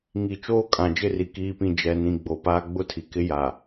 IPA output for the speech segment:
ŋ i˨ t͡ʃ oː˦ kʼ ã˨ d͡ʒ ɪ˦˨ r i˨ k iː˨ p ĩ˨ d͡ʒ ɛ˨ n ĩ˨ ɡ͡b o˨ p aː˦ ɡ͡b ʊ˦ tʰ i˨ k ɪ˦ j a˨

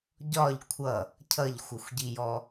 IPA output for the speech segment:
ɟ ɒ ʎ kʷʰ ʌ | cʰ ʌ ʎ xʷ ʌ xʷ ɟ i j ɔ

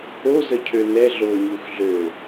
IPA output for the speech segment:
o z ə cʰ ø n ɛ ɮ o ɲ u x ɮ ø

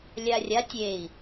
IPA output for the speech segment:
lʲ a rʲ a tʲ e i̯

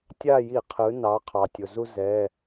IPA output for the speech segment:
tʲ a˦˨ j i˧˩˧ qʰ ɯ˩˧ n ɑ˩˧ qʰ ɑ˩ tʲ o˩ z u˦ z ɛ˩˧˩

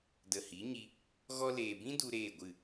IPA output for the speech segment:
d ə˨ h i˨˦ ɲ i˧ | ɣ ɔ˧ l eː˨ b ĩ˦ d u˧ ɾ eː˦˨ ɡʷ ɨ˦˨

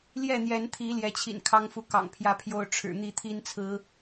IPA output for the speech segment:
l j ɛ˥˨ n̪ j ɛ˨˦ n t̪ʰ i˨˦ l j ɛ˨˦ t͡ɕʰ ḭ˨˩ n kʰ ɑ˦ ŋ f u˨˦ k ɑ̰˨˩ ŋ pʰ j ä˦ pʰ j o˦ ʊ̯ ʈ͡ʂʰ ɻ̩˨˩ n̪ i˥˨ t̪ʰ i˦ n t͡sʰ ɹ̩˨˦

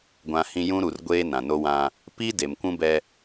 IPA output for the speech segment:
ɡʷ ã˨ h ĩ˨ j ũ˦ ɾ u˨ r ɡʷ eː˦ n ã˨ n o˦ w ã˦ | p i˦ d e˨ m kʷ ũ˦ b ɛ˦

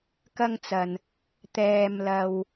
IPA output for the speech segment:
k ɐ˧ ŋ t͡s ɐ˨ n | t̪ ɛː˨ m l ɐ˨ w

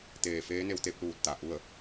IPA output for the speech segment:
t̪ eː˧˩ f eː˧˥ n e˧ w t̪ e˧ p̚ l uː˧˩ t̚ t̪ a˩ ʔ u˥˨ ə̯

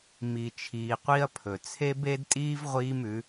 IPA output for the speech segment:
m i˨ t͡ʃʰ iː˨ qʷ i˦ ɐ̯ pʰ ɵ˨ t͡sʰ e˦ b e˦ d tʼ iː˦ v ʁʷ iː˦ m ʉ˨˦

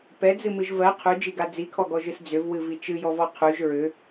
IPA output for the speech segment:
p ɛ d͡z ɨ m ɨ ʒ v ɜ qʰ ʉ d͡ʒ i ɡ a d͡z i kʰ ɔ ɡ ɔ ʒ ɨ s d͡z ʏ v w ɨ v i t͡ʃ ɨ j ɔ v ɔ qʰ ʉ ʒ ɹ ʏ

